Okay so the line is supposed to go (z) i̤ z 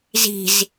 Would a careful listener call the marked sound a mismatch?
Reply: no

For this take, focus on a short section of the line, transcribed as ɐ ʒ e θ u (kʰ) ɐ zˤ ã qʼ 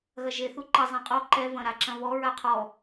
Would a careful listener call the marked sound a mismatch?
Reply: yes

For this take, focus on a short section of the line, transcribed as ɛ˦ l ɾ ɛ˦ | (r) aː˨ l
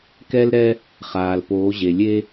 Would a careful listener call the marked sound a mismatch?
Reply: yes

